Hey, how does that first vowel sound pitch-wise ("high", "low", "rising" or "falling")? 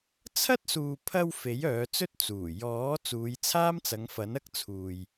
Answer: high